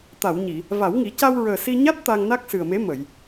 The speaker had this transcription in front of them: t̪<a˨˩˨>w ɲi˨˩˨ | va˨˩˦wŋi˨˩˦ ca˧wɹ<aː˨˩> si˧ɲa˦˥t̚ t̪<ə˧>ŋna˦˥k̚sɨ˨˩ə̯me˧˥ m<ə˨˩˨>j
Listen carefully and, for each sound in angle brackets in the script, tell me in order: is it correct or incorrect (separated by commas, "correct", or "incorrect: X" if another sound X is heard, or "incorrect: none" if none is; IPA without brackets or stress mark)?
correct, incorrect: əː˨˩, incorrect: a˧, correct